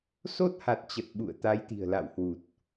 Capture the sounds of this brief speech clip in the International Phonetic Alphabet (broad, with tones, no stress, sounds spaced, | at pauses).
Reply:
s o˦˥ t̚ h a˨˩ t̚ t͡ɕ ə˨˩ t̚ ɓ ṵ˧˨ ə̯ t̪ a˨˦ j t̪ i̤˨˩ ə̯ l a̰˧˨ w h w u˨˩ t̚